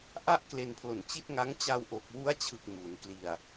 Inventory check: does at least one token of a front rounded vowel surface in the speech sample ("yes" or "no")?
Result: no